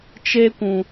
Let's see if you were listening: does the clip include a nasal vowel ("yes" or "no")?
yes